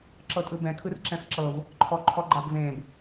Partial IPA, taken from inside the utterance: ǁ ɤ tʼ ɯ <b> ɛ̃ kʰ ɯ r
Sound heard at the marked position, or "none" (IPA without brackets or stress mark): b